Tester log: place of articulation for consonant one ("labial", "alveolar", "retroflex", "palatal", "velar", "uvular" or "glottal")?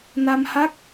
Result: alveolar